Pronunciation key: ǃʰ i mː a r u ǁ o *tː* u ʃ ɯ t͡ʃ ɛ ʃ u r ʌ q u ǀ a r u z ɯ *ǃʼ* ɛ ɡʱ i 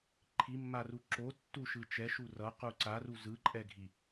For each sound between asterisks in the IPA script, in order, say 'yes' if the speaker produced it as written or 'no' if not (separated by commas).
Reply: yes, yes